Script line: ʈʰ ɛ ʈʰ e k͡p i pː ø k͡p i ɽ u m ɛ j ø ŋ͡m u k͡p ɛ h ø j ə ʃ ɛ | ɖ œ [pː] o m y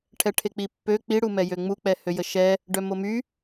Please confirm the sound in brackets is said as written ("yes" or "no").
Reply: no